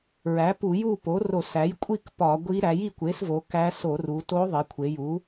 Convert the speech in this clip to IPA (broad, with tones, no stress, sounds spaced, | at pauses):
ɹ æ˩˥ p u˧˩˧ j u˥˨ p o˩˥ r o˧˩˧ s æ˩˥ j kʷʼ i˥˨ k p ɒ˧˩˧ ɡʷ i˧˥ ɾ æ˩˧ j i˥˨ kʷ e˩˥ s v o˩˧ k æ˧˥ s o˧˩˧ r u˩˧ t o˧˥ ðˤ i˩˧ kʷʰ e˩˧ j u˩˥